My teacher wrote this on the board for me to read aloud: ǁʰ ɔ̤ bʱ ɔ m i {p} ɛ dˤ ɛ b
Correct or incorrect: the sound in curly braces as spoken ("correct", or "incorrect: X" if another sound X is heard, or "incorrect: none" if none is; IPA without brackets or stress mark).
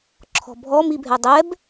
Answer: incorrect: bʱ